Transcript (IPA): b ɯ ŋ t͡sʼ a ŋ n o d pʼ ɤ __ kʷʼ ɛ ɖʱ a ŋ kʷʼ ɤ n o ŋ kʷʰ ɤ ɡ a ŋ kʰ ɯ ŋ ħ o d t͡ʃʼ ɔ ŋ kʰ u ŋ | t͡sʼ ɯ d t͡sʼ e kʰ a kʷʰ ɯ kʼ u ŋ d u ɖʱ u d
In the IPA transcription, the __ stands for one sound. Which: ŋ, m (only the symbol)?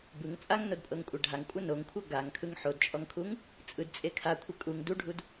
ŋ